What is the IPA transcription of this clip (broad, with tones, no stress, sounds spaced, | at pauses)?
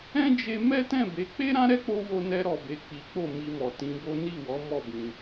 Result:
ɛ̃˦ d͡ʒ e˧ m ɛ˦ t ɛ̃˦˨ b e˨˦ k͡p e˦ ɾ ã˦ ɾ ɛ˦ k͡p o˧ w o˧ n ɛ˧ ɾ ɔ˨ b e˨ k͡p i˨˦ k͡p o˦˨ m i˧ m ɔ˨ t ĩ˨˦ b o˦ n i˦˨ w ɔ˨˦ m ɔ˦˨ b ĩ˧